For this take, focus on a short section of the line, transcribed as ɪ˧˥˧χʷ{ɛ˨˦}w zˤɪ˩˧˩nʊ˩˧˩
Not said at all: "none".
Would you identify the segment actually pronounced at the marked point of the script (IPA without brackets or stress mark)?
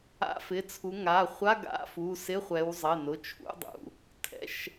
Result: ɛ˨˦